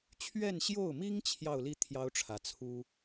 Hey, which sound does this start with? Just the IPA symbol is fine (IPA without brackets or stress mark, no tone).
t͡ɕʰ